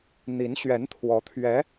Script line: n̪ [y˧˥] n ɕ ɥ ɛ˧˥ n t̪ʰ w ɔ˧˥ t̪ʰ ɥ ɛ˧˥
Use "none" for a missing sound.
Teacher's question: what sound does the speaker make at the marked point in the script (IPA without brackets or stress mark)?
i˧˥